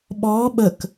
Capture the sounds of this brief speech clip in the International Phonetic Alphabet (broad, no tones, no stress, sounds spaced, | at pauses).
ɓ ɔː ɓ ə k